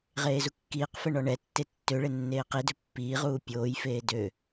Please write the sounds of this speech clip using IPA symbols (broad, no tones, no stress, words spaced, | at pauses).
ʁeːzukːiːqfɛ ɳɔɳɛtːe tːøɭe nːeːqidø pːiːʁuː pʲoːjfeː dø